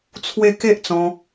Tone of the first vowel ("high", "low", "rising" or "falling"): high